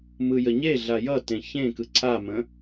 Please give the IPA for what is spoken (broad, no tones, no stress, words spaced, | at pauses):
mɯjəɲeɮa jʌtẽ çẽkɯ ǀʰamə̃